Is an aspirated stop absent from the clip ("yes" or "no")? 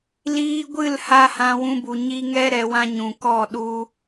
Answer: yes